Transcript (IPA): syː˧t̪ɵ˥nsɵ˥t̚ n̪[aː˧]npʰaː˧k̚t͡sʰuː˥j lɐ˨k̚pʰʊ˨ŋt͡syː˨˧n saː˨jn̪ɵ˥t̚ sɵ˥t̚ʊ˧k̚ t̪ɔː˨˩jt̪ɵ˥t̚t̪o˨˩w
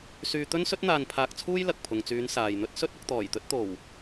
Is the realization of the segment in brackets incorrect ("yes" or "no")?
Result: no